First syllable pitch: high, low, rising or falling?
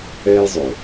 high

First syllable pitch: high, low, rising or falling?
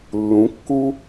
rising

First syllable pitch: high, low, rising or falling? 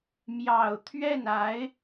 low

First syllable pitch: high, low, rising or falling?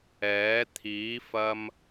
rising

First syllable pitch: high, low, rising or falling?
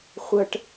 high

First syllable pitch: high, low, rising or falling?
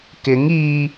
rising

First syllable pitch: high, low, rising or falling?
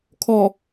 low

